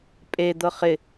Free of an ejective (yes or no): no